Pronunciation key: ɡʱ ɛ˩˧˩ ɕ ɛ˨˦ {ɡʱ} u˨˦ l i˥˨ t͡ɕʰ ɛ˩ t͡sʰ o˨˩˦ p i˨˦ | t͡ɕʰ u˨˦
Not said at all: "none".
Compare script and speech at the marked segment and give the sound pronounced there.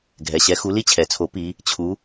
x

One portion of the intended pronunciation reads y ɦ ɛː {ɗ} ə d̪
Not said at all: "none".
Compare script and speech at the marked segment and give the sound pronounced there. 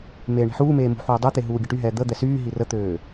d̪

